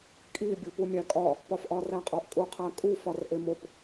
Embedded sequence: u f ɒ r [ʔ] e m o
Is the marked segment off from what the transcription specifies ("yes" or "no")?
no